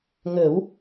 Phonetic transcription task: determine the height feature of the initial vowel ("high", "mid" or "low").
mid